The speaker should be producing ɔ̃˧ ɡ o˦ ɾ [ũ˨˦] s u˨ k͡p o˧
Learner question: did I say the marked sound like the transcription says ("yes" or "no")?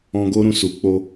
no